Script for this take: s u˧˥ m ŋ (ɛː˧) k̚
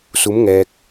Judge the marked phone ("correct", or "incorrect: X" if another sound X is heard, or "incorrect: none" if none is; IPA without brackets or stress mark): correct